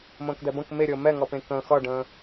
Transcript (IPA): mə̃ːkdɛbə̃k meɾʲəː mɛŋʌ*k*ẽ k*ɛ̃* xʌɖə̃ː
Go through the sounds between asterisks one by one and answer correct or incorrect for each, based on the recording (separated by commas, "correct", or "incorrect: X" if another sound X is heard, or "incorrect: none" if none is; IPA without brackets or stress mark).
incorrect: p, incorrect: ə̃